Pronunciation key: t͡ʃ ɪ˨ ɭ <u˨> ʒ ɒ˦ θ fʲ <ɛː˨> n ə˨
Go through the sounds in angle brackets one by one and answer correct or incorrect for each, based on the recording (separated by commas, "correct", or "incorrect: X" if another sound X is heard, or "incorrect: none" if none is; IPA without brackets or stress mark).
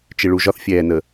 correct, correct